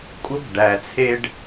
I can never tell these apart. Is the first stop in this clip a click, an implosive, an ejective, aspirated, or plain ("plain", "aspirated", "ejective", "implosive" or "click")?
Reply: ejective